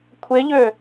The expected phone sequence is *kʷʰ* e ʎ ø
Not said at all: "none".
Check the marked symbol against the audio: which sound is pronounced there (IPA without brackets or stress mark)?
kʷʰ